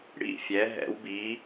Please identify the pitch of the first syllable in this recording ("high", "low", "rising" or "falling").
falling